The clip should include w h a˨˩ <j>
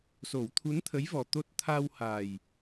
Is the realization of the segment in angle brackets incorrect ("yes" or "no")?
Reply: no